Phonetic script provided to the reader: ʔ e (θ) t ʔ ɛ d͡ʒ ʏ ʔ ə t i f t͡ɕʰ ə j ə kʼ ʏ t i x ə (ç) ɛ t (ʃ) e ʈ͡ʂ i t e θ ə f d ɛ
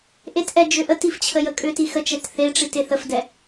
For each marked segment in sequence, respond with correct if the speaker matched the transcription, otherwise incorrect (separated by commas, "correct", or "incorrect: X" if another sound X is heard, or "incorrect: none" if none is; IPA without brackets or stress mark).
incorrect: none, incorrect: t͡ʃ, incorrect: θ